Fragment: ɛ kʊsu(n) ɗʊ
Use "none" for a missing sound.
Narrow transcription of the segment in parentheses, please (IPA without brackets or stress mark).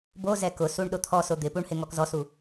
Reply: ɳ